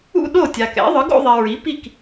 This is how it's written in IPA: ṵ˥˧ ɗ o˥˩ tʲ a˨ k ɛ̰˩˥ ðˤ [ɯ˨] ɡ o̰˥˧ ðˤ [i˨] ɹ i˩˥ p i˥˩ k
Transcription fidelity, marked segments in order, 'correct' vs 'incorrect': incorrect: ɯ˩˥, correct

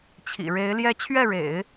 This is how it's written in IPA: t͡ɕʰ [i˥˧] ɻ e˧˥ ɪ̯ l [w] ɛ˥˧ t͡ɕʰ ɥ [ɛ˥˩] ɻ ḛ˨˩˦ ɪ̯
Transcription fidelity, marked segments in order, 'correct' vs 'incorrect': incorrect: ḭ˨˩, incorrect: j, correct

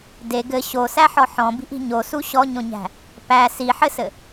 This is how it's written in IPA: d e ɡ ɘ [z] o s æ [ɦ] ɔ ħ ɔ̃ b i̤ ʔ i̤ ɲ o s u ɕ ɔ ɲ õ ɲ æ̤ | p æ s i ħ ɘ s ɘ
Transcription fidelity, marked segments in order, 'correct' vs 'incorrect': incorrect: ɕ, incorrect: ħ

